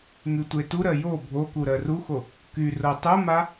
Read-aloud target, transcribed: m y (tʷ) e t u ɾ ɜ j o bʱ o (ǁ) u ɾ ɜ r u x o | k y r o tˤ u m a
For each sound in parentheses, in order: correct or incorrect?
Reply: correct, incorrect

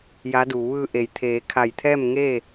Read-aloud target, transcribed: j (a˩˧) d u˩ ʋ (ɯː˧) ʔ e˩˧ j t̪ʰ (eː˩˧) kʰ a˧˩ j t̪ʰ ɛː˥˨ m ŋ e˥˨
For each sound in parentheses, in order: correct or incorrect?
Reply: incorrect, correct, correct

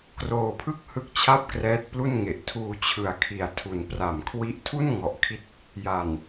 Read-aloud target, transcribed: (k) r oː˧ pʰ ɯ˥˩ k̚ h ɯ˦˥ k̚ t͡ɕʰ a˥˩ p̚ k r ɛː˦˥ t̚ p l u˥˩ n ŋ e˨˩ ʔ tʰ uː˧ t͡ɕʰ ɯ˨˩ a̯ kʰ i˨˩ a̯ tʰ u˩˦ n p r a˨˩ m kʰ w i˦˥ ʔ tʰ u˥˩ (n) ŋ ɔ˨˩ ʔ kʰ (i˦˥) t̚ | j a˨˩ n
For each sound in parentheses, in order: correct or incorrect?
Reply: correct, correct, correct

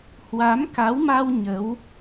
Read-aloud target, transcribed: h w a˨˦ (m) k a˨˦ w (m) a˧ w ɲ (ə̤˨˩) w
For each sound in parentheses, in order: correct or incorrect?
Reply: correct, correct, incorrect

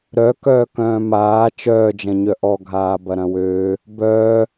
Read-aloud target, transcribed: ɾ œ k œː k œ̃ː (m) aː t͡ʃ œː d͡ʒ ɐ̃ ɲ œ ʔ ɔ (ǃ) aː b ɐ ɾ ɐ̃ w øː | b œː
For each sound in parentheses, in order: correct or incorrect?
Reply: correct, incorrect

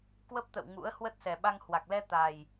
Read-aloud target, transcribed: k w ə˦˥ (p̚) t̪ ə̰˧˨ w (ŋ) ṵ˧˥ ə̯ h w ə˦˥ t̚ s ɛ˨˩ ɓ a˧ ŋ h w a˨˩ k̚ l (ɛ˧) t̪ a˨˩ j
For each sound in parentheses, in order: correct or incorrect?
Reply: correct, correct, correct

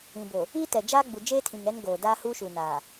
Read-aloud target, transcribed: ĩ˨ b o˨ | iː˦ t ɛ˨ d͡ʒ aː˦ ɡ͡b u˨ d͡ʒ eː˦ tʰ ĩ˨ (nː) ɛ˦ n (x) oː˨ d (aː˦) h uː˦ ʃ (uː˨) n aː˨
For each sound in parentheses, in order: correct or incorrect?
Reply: incorrect, incorrect, correct, correct

